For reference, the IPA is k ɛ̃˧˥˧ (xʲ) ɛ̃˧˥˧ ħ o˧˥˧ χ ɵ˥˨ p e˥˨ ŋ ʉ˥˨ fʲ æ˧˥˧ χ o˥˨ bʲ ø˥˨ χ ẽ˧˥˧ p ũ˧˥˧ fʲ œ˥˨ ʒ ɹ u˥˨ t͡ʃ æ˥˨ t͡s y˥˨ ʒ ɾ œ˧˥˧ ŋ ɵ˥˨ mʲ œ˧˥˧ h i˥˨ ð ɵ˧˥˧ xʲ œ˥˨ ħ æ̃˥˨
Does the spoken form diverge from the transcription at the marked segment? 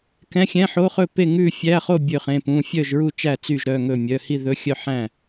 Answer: no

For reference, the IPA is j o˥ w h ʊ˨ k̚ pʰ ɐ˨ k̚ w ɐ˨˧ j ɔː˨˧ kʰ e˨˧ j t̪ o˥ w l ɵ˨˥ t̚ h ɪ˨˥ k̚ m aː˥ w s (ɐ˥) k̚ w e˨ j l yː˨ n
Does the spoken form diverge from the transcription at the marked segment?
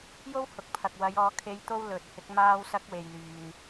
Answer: no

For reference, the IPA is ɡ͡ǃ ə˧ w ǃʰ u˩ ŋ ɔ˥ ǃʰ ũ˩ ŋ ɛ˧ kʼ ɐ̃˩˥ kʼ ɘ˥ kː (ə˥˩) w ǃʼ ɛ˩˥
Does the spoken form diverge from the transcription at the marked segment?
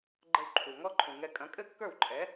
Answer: yes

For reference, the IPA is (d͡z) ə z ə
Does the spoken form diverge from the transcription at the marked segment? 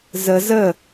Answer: yes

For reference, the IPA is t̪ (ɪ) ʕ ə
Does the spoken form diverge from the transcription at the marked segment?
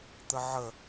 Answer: yes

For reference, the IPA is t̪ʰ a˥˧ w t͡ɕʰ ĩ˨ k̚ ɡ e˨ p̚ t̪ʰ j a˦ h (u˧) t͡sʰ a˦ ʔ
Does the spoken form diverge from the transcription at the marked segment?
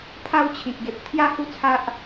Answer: yes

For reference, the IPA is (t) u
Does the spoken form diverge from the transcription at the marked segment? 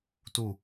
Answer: no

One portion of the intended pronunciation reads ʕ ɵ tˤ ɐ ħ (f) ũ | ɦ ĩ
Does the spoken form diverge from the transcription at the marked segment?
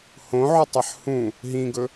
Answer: yes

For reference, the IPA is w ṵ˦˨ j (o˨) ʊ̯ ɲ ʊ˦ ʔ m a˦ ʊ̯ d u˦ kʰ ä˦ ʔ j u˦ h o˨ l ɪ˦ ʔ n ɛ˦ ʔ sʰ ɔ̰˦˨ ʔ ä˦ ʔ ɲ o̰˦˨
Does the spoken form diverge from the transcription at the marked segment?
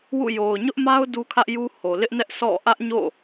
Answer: no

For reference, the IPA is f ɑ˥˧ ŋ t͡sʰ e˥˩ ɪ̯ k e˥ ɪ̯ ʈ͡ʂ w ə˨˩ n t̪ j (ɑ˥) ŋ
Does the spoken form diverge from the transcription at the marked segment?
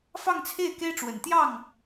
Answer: yes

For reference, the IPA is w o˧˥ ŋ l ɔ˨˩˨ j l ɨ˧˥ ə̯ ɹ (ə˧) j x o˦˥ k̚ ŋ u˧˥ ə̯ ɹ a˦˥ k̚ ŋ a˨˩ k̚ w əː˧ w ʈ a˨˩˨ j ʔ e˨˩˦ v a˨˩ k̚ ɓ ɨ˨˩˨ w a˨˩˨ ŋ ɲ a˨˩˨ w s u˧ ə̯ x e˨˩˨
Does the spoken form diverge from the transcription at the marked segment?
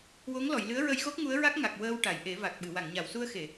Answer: no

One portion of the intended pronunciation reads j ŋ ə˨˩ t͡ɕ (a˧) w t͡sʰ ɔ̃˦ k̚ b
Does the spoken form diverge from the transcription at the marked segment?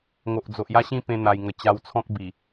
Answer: no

